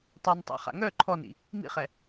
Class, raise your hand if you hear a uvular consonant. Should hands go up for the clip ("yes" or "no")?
yes